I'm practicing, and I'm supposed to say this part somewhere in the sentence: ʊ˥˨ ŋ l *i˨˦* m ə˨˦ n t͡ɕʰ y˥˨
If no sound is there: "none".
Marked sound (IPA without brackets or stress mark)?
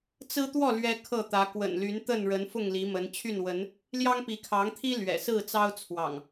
i˨˦